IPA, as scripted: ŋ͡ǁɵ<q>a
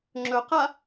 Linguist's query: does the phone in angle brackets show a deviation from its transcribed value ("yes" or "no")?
no